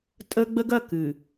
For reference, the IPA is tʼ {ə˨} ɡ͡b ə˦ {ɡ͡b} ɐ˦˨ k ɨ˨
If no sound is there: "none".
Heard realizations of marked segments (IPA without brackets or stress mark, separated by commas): ə˦, ɡ